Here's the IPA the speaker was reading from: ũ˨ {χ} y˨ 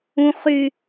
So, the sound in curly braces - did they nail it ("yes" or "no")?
yes